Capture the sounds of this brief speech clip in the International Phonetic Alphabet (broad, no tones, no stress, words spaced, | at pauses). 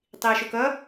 tˤiə̯ʃokʌ